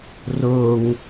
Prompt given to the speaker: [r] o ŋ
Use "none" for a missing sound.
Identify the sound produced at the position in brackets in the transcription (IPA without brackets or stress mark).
r